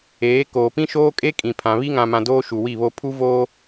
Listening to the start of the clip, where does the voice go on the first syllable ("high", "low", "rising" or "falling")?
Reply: rising